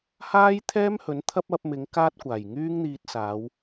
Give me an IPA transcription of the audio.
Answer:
haː˥jt̪ʰɛː˥mhɵ˨˥n t̪ʰɐ˥p̚ɐ˨˥p̚mɪ˨˥ŋ kaː˥t̚kʷaː˨˩j ŋyː˥ŋn̪iː˧t̚saː˨˧w

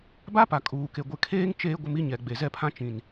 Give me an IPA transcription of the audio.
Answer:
ba˦pa˨ kʼuː˨ke˨ ɡʷɪ˨kʰeː˦ŋ t͡ʃeː˦ ɡʷɪ˦mi˦ɲɛ˨ ɡ͡be˨zɛ˦pʰã˦ t͡ʃĩ˨n

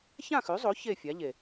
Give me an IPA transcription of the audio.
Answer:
çã˥˧xʉ˨˥zˤo˨˥ çe˥˧fʲa˨˥ʎe˨˩

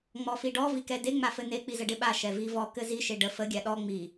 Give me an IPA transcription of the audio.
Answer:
ŋ͡mɔfiɖɔ vikɛde ŋ͡mafɘne k͡pizəɖɪɓa ʃɛvivɔ kɘzi ʃeɖə fə ɡʲaɗɔ ŋ͡mi

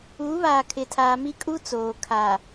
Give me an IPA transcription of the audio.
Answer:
uː˨˦βaː˨kʰɪ˨tʰaː˨ mi˦kʼu˦t͡soː˨ kʰa˨

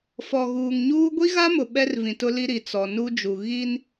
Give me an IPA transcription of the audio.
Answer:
fɔ˨ɣuː˨ŋɲuː˦ ɡʷi˦ɣa˦mʊ˨ ɓɛ˦rvĩ˨ tʊ˦li˦ ɾi˨ t͡sɔ˨nu˦d͡ʒu˨ ɣi˦n

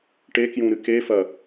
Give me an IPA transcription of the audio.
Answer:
ʈekjũ ɾɨkefɐ

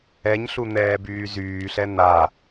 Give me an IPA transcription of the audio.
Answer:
ɛɲɬu n̪ɛːbyːzyːɬɛ n̪a

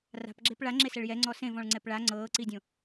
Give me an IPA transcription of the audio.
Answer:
ra̤pɡ͡ǁep ɭaŋ͡ǁesɛɭ jɛŋ͡ǀɔ sẽvɔ̃ɭŋ͡ǀɛp ɭa ŋ͡ǀɤːǀidʲõ

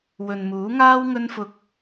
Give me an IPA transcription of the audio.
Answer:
wɵ˨nmuː˨˥ŋaː˥w ŋɵ˥nfʊ˧k̚

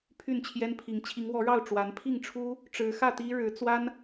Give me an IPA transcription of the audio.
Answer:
pʰy˥˨nt͡ɕʰjɛ˦npʰi˨˦ŋ t͡ɕʰi˨˦ŋwɔ˨˦ɻɑ˥˨ʊ̯ ʈ͡ʂwa˨˦n pʰi˥˨ŋʈ͡ʂʰu˦ | ʈ͡ʂɻ̩˨˦xä˥˨t̪i˦ ɻɻ̩˨˦ t͡swa˦n

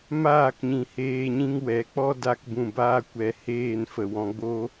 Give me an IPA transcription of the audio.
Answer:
maː˦˨kɲĩ˨ heː˧ɲĩ˦ŋwɛ˨˦ k͡pɔ˦da˧kbũ˨ baː˦kʷɛ˧heː˦˨nfə˨ wɔ̃˧ ɡ͡bo˦

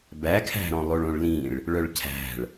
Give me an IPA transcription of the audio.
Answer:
bækʰæ̤ɾɔ̃ lˠoɭõɭlĩɭ | ɭœɭcʰæ̤ɭ

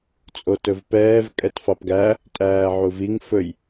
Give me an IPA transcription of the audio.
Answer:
t͡sʼotɵvpɛːv kʼɛtfɑpɡæ | tʼæːʕuviŋ fɵj

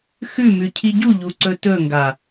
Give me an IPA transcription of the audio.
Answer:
xʉmʉ cʰiɟuʎuǀɵ tɵŋɡa

